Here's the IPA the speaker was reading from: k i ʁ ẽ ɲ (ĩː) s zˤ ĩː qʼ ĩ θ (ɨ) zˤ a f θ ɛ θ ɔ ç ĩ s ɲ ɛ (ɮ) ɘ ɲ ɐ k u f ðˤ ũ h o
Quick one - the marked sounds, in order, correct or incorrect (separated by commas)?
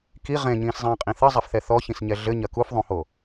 correct, correct, correct